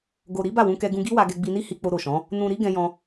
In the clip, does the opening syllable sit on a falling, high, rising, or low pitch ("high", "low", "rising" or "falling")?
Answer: low